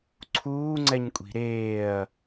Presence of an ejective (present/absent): present